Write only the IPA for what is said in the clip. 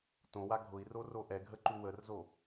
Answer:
tõwa ɡʱʊi̯roro ʔɛɡʱəǃu wərzo

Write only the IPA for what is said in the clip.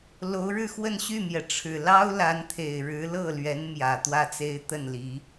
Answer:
lo˧˥ʊ̯ɻɻ̩˥˧xwə˥˧n ɕy˥˩mjɛ˩ʈ͡ʂʰɻ̩˨˩ lɑ˥ʊ̯la˧˥nt̪ʰe˨˩ɪ̯ ɻɻ̩˧˥lɤ˥˩lɥɛ˧˥n mjä˨˩t̪wä˥˩t͡se˥ɪ̯ t̪ə˥˩nli˧˥

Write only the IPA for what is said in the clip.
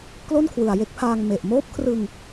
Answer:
klo˥˩nkʰwɯ˨˩a̯je˦˥k̚pʰaː˧ŋ me˨˩ʔ moː˦˥p̚kʰrɯ˧ŋ

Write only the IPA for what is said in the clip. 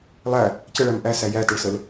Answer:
lˠæ | cəɭæm ʔæsæ jætəɭsəl

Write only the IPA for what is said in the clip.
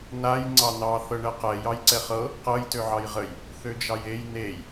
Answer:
naj ŋ͡ǀɑnɑ θɤɳɛqɛ jɑjǀɛχɤ | qɤj tøʕɑjʁəj | θød͡ʒɑjej nej

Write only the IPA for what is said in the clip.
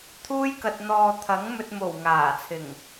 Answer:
t̪ʰuː˥jkɐ˧t̚n̪ɔː˧ t̪ʰɐ˨˥ŋmɵ˧t̚mo˨˩w ŋaː˨˩t͡sʰɪ˨˩ŋ

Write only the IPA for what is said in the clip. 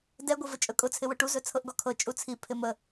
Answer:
dɛɡʷə vət͡ʃʼɵkʼʊt͡sʰɪ wʊʈuzɵ t͡sʰɤʔɡɔkʰɤ t͡ʃʼut͡sʰi pʰɪmə

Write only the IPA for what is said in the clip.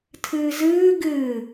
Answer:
tʰɨːzɨː ɡɨː

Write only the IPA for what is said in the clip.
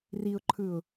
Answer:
riʊ̯ǃʰɯʊ̯

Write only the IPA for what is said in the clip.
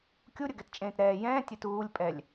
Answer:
kʲuɾʲəɡɛtt͡ʃʼẽːt ɾɛː jɛ̃ː tʲɛtuːlʲpʼɛlʲ

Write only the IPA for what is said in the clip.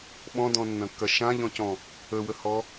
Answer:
ɓɔ̃dɔ̃nːɐ̃kːɐ ʃãʎɔ̃cɔ̃ | əwəhɔ

